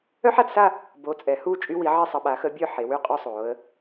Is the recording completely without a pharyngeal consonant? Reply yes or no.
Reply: no